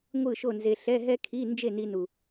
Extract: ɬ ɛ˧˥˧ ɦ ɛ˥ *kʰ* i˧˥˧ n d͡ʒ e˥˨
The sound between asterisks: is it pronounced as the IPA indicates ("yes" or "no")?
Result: yes